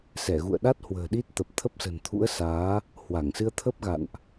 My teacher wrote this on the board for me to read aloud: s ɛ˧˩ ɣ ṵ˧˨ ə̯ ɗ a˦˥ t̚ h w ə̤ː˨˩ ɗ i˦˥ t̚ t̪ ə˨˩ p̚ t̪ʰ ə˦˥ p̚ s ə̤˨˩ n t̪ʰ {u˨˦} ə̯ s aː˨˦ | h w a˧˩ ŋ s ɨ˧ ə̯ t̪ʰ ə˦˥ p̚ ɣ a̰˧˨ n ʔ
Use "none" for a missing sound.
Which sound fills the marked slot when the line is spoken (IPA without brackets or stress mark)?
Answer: ṵ˧˥